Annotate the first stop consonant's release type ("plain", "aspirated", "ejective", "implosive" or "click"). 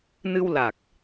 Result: plain